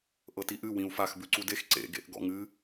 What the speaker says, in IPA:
ʔ ɤ t i ʔ ɨ w ĩ u̯ f a x b ʉ ǀ u d e x ǀ ḛ ɡ ḛ ʔ ɡ ɔ̰ ŋ ɨ

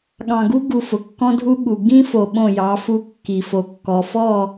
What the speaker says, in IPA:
ɠ ɑ̃˨ ɡ u˦ ɡ u˨ f ʊ˨ kː ɔ̃˦ dʱ u˦ ɠ u˨ ɡ ĩ˦ f o˨ ɓ õ˦˨ j ɑ˨˦ f u˦ kː i˨ f o˨ kː ɔ˨ f ɔ˦˨

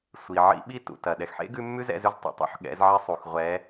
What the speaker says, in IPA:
sʷ i˩ ʕ ḭ˧˥ ɓ i˥ t ṵ˩ t ɐ˩ ɗ ɛ˩ x ħ ḛ˥ ɡ ʉ˧˥ mː ʉ˥ z ɛ̰˧ z ʉ˧˥ z tˤ ḛ˩ tˤ ṵ˥ ħ ɠ ɛ̰˩˧ z ʕ e˧ sˤ u˩ x ʁʷ ɛ˧˥

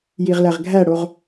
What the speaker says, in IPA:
j i ʁ l æ ʁ ɡʱ æ ɽ o ʁ

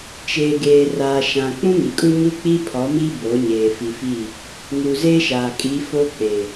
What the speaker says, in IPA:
t͡ʃ eː˨ ɡ eː˨ r aː˨ ʃ ã˨ k͡p ũ˦ ŋ i˨ kʼ u˦ ɲ u˦ k͡p i˦ pʰ ɔ˨˦ m i˦ b o˨˦ ɲ eː˨ f i˨ f iː˦˨ | ŋ uː˨ z eː˦ ʃ aː˨ kʼ i˨˦ f o˦ k͡p eː˨

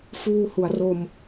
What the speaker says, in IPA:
f uː˧ h u˩˦ a̯ r o˧ m

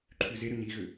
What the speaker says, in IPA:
ǃʰ ʉ z e ɾ ʏ ɲ i ɣ ʏ

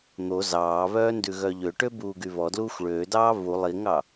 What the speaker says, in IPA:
n̪ o z ɑː β œː n d ʉ ɣ œ ʎ ø ʈ ø b uː ɡ y β ɔ d l uː xʷ ɭ øː d ɑː β u lˠ i ŋ ɑ

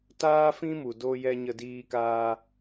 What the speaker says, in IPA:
t aː˦ f ĩ˦ m u˨ d o˧ j ɛ˧ ɲ ə˧ d iː˧ k aː˧

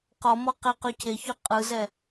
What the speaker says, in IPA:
q ɔ m ɔ q e q ø cʰ e ç ʉ qʼ ɯ z ɛ

